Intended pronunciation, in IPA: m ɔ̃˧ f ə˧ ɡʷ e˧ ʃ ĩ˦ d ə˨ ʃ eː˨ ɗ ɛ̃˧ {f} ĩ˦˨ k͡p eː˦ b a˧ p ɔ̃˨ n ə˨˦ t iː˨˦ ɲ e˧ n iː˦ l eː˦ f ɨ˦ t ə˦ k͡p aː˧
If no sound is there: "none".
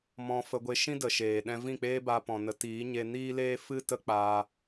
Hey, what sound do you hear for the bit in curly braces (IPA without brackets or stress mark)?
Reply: v